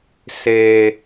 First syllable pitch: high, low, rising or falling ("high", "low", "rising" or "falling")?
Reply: low